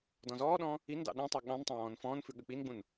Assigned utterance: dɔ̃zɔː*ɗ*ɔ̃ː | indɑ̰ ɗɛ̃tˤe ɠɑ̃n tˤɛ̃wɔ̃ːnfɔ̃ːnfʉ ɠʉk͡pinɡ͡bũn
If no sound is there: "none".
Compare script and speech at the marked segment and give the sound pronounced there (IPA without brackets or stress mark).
ɗ